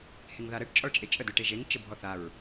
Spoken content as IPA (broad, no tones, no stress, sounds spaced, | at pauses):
h e ŋ ð a ɾ ə ʈ t͡ʃʼ ɔ ɭ t͡ʃʼ e t͡ʃʼ ə d ø ʈ e ʒ e ŋ t͡ʃ ə bʱ ɔ θ a ɹ